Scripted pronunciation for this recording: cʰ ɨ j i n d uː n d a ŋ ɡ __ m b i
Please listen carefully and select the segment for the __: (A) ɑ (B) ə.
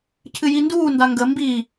B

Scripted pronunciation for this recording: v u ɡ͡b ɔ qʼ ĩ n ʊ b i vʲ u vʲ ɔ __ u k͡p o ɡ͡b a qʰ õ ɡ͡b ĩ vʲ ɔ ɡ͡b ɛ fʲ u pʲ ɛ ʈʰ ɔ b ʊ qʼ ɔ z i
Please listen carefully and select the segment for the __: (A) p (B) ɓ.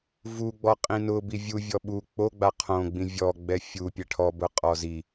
B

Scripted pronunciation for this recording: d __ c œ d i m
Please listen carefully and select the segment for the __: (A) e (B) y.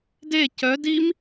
A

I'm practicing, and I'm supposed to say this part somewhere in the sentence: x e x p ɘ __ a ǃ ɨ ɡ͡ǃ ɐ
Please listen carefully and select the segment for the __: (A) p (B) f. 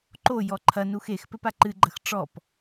A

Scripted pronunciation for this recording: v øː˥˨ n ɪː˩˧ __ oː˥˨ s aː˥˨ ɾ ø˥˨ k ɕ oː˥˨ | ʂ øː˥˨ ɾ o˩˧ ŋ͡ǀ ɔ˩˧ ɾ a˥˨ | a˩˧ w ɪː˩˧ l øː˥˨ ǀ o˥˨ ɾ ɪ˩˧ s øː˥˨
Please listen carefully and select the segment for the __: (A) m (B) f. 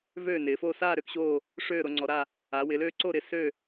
B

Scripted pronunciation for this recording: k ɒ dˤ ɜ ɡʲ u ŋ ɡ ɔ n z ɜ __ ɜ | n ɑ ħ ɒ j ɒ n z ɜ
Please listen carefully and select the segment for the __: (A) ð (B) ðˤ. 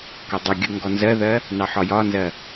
A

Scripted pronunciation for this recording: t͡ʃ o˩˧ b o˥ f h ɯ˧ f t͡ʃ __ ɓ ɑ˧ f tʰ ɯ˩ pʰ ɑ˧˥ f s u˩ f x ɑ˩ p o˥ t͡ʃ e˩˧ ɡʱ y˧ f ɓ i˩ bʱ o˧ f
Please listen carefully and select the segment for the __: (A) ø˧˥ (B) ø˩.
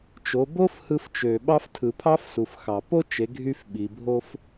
B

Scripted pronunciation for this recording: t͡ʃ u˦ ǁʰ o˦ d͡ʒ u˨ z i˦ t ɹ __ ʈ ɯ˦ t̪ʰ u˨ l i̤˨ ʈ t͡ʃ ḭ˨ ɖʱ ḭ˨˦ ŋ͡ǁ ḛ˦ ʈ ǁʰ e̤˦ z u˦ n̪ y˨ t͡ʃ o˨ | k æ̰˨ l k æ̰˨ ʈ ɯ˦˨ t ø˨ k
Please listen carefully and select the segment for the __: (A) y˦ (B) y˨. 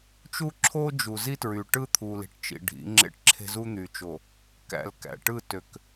B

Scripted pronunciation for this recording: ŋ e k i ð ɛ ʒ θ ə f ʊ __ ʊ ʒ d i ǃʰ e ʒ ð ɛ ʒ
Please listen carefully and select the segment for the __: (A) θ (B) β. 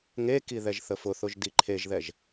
A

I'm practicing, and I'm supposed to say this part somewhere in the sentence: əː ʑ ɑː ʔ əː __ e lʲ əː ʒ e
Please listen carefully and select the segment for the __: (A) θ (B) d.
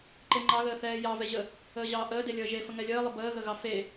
B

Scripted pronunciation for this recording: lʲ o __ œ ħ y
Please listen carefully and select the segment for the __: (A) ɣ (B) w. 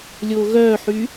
A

